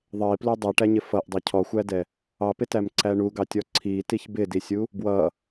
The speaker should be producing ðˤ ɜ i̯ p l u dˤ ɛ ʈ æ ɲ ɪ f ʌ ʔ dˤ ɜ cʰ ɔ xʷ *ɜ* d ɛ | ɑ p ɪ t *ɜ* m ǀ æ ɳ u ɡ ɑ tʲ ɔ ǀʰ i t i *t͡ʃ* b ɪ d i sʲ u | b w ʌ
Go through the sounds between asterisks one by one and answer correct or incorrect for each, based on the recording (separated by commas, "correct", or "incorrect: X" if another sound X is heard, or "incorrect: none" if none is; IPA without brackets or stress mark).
incorrect: æ, incorrect: æ, incorrect: ç